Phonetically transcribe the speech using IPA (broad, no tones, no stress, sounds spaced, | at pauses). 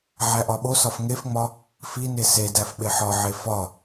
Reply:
ʕ æ ʔ ɒ ɓ o s ɒ f ŋ e f ŋ͡m ɒ | f i n e s e d æ f ɓ e ħ ɒ ʕ e f ɒ